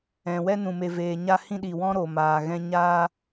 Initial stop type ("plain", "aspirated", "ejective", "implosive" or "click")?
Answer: implosive